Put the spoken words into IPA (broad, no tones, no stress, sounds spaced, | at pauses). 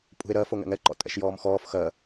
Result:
pʼ ṳ e̯ ɾ ɜ f o ŋ ɛ̰ ŋ ɛ ǃ ɔ̰ tʼ ɛ̰ ʃ j ɔː m x ɔː f x ɜ